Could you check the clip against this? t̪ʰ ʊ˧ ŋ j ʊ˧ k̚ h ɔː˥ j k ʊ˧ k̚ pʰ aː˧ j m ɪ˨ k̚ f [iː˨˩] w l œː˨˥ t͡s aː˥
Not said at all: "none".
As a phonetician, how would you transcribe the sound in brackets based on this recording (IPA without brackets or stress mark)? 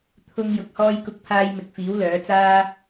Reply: iː˨˥